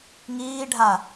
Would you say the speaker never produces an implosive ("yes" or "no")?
yes